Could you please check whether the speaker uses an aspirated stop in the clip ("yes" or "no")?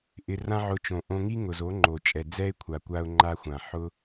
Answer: yes